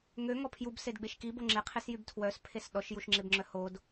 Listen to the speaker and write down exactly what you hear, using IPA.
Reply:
ŋ ø ŋ ɔ pʰ j u b s e d ɡ͡b e ʃ k i b o ŋ͡ǁ e qʰ e s j y b tʰ w œ s pʰ e s ɗ ɔ ʃ j u ʃ ŋ͡ǁ e b ŋ͡ǁ œ h o d

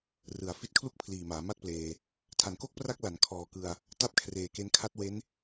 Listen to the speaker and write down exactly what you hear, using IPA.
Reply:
r ɯ˩˦ a̯ f i˦˥ t̚ kʰ l u˥˩ k̚ pʰ l iː˨˩ m aː˩˦ m a˥˩ t̚ p l eː˧ | tʰ a˩˦ n k o˦˥ k̚ p r a˦˥ k̚ l a˩˦ n kʰ ɔː˨˩ k ɯ˧ a̯ | t a˦˥ p̚ kʰ r eː˨˩ k e˧ n kʰ a˦˥ t̚ w e˦˥ n

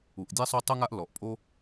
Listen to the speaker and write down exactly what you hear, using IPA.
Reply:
u˩ ʔ dʲ ɛ˥ sˤ o˥ tˤ u˥ ŋ a˥ ʔ l ɔ˩ ʔ pʼ o˥

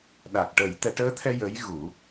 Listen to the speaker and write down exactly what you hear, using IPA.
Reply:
ɗ a˨˩ k̚ ʈ ə˨˩˦ j t̪ ɛ˨˩˦ ʈ əː˧˥ t̪ʰ ɛ˧ j ə˧˥ j ɣ u˨˩˦

